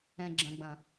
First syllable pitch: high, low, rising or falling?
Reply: low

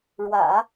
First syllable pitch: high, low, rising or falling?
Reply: low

